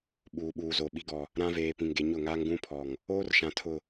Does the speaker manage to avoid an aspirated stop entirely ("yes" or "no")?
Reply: no